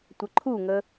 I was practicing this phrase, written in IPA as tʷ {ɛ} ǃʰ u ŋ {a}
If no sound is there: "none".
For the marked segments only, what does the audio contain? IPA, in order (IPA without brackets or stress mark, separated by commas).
ə, ə